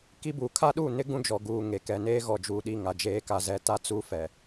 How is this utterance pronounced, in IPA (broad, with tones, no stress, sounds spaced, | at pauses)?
k i˦ b u˨ kʰ a˦ ɗ uː˦˨ n ɪ˦ ɡ ũ˦ d͡ʒ ɔ˨ ɡ uː˨ ŋ e˨ k ɛ˨ n eː˦ ɣ ɔ˨ d͡ʒ uː˨ ɗ i˦˨ ŋ a˨ d͡ʒ eː˨˦ k a˨ z ɛ˨ t a˦ t͡s u˦ f ɛ˨